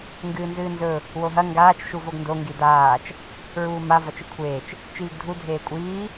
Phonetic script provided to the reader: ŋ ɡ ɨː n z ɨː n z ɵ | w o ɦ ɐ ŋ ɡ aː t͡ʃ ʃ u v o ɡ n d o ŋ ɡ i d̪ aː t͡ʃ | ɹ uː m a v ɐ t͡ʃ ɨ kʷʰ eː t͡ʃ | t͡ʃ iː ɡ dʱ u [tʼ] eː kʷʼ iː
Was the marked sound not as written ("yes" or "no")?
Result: yes